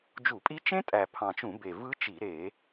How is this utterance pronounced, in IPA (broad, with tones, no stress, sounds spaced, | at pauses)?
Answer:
d͡ʒ u˧˩˧ pʼ i˦˥ t͡ʃ ẽ˦˥ tʼ æ˨˩ pʰ ɑ̃˨˩ t͡ʃ ũ˧˩˧ b e˨˩ v ɯ˦˥ t͡ʃ i˧˩˧ ɾ e˧˩˧